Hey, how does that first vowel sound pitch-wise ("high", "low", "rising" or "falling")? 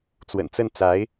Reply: low